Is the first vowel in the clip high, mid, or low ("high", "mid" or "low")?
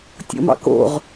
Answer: mid